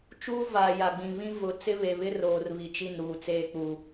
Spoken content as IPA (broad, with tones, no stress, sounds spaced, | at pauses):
t͡ʃ uː˦ v aː˨ j a˨ ɡ͡b ĩ˨ β ĩ˦ v ʊ˨˦ t͡s ɪ˦ β e˨ β ɪ˦ r oː˨ r β i˨ t͡ʃ i˦˨ n ɾ uː˨ t͡s eː˦ k͡p u˨